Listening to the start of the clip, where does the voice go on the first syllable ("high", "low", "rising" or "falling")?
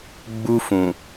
high